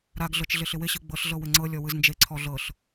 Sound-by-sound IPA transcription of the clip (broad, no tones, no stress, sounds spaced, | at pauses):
ɾ a ɡ ɮ ɤ t͡ʃ ɮ ɪ ɬ ɪ w ɪ ɕ ɯ ɡ͡b ɤ ɬ ɮ ɤ w ɪ ŋ͡ǀ ɤ lʲ ɔ w ɯ z n d͡ʒ e ǀʰ ɔ ɮ ɤ ɬ